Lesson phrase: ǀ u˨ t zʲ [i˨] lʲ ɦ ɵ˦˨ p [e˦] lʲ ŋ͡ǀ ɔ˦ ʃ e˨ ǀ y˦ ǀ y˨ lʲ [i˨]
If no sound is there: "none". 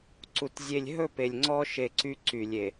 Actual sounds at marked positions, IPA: e˨, e˨, e˨

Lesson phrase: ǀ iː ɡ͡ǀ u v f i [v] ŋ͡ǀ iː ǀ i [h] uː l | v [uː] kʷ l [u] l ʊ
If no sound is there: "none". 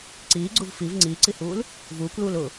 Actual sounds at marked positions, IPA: v, h, uː, uː

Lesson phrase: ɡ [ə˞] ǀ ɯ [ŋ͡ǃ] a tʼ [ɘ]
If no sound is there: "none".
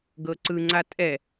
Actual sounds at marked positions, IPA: ɤ, ŋ͡ǀ, ɛ

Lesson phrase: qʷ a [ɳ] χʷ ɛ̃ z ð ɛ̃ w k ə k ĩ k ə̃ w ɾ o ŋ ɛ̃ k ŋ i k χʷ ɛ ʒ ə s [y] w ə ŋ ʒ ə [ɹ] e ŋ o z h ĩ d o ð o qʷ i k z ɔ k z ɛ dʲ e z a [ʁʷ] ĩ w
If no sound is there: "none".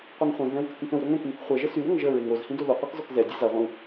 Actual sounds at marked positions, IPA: ŋ, y, ɹ, ʁʷ

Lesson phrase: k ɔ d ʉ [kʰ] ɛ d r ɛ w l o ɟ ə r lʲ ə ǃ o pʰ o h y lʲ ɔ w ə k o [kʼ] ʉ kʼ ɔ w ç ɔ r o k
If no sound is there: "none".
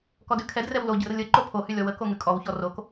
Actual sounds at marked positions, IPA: kʰ, ŋ

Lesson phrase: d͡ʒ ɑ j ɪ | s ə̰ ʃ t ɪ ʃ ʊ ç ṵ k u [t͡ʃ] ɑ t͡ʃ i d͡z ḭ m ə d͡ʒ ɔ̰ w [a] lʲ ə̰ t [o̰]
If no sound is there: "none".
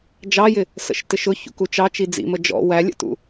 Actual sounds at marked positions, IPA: t͡ʃ, æ, ṵ

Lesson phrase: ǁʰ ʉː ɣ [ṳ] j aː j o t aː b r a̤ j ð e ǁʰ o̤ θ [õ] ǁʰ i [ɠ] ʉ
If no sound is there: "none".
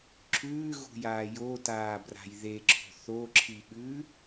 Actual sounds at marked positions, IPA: ṳ, o, ɠ

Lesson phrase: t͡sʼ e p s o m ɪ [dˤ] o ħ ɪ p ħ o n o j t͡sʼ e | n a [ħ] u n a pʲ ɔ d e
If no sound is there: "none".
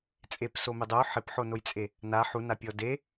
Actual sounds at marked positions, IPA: dˤ, ħ

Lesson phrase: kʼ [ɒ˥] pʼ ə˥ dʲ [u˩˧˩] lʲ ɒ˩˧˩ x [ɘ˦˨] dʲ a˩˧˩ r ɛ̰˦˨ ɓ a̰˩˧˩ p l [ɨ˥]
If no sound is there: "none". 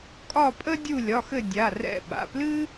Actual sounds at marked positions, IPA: ɒ˦˨, u˦˨, ɘ˦˨, ɨ˥

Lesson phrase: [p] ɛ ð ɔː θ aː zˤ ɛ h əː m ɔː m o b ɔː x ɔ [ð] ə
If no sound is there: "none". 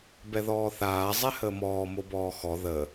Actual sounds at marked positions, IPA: b, ð

